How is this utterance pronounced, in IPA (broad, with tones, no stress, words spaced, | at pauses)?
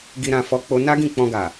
ɡi˧ɾã˧fɔ˧k͡po˧ na˦ɡĩ˦˨k͡pɔ̃˧ɡa˨